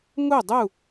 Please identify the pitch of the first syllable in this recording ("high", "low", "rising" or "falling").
falling